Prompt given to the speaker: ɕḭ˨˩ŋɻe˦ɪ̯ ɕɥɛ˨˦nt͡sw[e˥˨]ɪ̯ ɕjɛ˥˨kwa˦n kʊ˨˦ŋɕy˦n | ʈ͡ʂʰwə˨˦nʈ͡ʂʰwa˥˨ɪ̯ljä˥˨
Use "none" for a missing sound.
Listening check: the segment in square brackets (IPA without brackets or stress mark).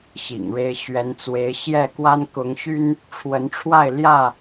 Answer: e˨˦